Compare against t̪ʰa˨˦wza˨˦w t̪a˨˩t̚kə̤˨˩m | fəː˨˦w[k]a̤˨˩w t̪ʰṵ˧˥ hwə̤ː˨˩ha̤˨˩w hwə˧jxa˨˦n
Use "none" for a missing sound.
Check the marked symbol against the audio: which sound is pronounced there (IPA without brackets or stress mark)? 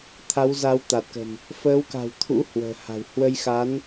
k